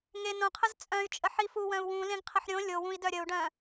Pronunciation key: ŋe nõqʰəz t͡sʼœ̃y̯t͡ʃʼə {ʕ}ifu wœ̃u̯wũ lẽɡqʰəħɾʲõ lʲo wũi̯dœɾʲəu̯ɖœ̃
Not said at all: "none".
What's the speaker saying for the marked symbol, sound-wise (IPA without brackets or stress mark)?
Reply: ħ